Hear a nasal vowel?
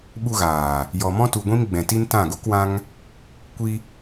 yes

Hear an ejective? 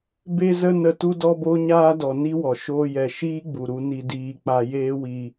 no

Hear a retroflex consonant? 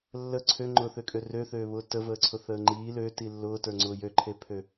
no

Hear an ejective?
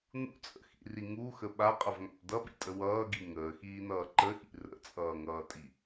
yes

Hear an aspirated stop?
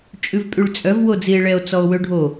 no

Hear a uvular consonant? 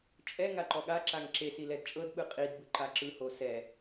yes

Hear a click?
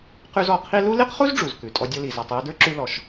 yes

